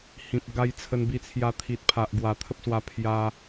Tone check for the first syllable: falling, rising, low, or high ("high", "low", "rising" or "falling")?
low